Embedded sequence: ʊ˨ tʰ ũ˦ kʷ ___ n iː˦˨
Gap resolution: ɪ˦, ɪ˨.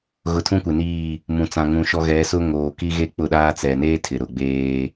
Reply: ɪ˨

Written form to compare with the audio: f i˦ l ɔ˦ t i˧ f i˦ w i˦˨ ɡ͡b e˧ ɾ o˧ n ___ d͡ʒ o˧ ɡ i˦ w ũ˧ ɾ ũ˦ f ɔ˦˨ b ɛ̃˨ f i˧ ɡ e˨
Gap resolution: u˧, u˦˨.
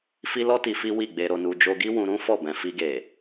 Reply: u˧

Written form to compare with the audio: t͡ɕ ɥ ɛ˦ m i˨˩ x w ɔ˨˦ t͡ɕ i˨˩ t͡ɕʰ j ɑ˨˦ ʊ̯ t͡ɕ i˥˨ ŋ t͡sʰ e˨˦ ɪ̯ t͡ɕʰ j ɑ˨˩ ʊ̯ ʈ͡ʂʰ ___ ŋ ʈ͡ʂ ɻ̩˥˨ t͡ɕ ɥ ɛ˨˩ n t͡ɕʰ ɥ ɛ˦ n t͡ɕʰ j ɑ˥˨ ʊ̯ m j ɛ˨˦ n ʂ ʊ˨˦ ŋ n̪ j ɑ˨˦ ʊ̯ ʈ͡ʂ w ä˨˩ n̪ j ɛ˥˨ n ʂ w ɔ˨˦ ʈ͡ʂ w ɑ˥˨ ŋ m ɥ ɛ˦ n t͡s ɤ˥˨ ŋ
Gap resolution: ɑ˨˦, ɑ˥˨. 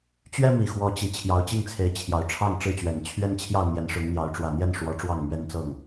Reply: ɑ˥˨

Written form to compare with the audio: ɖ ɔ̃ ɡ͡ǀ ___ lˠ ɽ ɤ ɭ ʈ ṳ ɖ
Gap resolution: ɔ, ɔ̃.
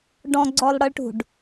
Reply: ɔ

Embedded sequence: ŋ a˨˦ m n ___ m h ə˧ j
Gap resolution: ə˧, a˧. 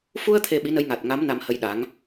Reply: a˧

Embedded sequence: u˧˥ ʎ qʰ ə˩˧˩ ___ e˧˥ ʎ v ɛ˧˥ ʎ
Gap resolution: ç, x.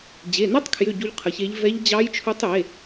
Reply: ç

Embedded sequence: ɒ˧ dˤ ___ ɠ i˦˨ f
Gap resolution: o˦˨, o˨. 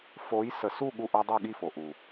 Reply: o˦˨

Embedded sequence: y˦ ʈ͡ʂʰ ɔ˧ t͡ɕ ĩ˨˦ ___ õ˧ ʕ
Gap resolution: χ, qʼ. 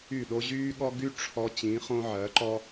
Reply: χ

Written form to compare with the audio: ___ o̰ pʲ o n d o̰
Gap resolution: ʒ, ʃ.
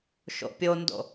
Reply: ʃ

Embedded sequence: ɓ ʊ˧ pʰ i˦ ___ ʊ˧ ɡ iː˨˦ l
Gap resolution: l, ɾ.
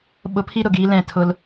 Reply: ɾ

